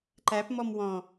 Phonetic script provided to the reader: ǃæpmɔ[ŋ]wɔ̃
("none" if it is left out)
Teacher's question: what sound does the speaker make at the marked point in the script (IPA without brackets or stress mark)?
m